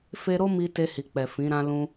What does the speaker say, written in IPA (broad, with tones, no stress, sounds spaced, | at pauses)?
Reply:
f e˧ ɾ o˦ m i˦ t e˧ h i˨ k͡p ɛ˨ f ĩ˨˦ ɾ ã˦ l ũ˧